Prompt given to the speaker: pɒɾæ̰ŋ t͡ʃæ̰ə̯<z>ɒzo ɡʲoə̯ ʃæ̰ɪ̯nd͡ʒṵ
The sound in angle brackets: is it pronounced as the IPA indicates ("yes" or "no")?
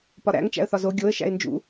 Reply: no